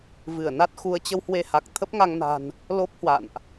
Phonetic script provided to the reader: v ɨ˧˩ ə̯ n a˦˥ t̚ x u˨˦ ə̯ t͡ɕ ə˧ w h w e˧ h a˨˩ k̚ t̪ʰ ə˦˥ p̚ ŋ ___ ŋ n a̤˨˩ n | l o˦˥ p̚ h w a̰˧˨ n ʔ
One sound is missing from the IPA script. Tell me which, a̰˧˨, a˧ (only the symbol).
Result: a˧